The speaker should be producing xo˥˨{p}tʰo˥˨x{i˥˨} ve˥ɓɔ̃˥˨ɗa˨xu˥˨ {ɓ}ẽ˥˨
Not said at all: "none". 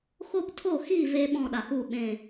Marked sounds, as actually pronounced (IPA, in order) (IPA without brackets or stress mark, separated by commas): p, i˥˨, ɓ